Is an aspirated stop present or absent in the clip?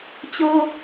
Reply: absent